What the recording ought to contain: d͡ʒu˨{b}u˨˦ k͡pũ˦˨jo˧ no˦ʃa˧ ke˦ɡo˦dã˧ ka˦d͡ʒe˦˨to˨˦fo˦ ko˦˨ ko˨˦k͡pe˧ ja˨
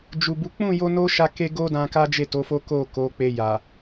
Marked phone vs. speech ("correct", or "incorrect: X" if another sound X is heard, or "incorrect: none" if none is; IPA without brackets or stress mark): correct